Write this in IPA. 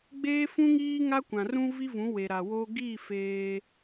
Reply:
ɡ͡b eː˦ f ũ˦ ŋ iː˦ ŋ a˦ kʷ ã˨ r ũ˦ v i˦ v ũ˨˦ w e˨ ɾ a˨ w o˦ ɡ i˦˨ f eː˦

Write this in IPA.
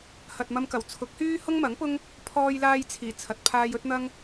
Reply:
h ɐ˨ t̚ m ɐ˧ m k ɐ˨˩ w t͡sʰ ʊ˨˥ k̚ h yː˥ h ʊ˥ ŋ m ɐ˨˥ ŋ p ʊ˥ ŋ | pʰ ɔː˧ j l aː˧ j t͡sʰ iː˨˩ t͡sʰ ɐ˨ t̚ pʰ aː˧ j ɵ˥ t̚ n̪ ɐ˥ ŋ

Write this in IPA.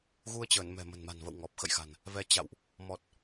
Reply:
ɣ u˧ ə̯ t͡ɕ əː˧˩ n m ɛ̤˨˩ m ə̤˨˩ n m a̤˨˩ n v ə̰˧˨ w ŋ ɔ˨˩ p̚ x ə̰˧˨ j x a̤˨˩ n | v ɛ˧ t͡ɕ a̰˧˨ w ʔ | m ɔ˨˩ t̚

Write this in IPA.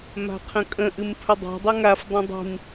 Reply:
m a̤ qʰ ə̃ kʼ ə̃ ʔ ɨ m pʰ ə dˤ a̤ dˤ ə ŋ a f dˤ ə̃ dˤ i̤ m

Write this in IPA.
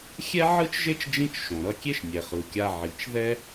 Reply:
xʲ ɛ˥ ʕ ɯ˥ t͡ʃ ʒ e˥ t͡ʃ d͡ʒ ĩ˥ t͡ʃ ʃ õ˩ ɾ ʌ˧ kʲ e˥ ʃ nʲ ɛ˩ χ ɯ˩ kʲ a˧ ʕ i˩ t͡ʃ ð ɛ˥

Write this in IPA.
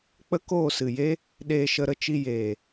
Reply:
k͡p ə˦ k oː˦˨ s ɨ˨ j e˦ | ɗ eː˧ ʃ ə˧ ɾ ə˦ t͡ʃ i˧ j eː˨

